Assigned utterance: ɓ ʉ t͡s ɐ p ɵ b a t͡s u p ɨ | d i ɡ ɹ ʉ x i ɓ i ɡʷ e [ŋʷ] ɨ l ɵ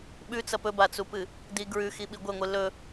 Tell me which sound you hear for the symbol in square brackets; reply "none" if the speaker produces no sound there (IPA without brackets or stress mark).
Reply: ŋʷ